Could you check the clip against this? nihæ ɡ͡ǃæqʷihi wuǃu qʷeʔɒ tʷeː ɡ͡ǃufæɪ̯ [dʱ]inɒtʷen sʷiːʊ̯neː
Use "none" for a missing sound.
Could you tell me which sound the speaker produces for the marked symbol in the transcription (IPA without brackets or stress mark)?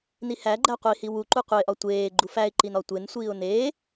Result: ǃ